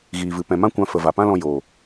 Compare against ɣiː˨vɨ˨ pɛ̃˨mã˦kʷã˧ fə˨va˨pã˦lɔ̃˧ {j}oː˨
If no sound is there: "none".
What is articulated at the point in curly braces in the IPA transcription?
j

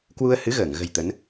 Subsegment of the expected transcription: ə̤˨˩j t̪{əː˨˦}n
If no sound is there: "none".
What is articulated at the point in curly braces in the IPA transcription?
ə˨˦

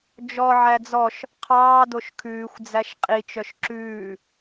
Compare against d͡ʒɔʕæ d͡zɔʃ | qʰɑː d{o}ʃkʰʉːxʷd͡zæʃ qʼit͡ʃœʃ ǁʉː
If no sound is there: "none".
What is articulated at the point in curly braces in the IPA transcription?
o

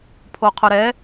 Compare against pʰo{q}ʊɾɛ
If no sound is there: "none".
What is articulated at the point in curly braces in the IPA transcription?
qʰ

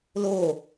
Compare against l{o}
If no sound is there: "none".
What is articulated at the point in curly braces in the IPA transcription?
o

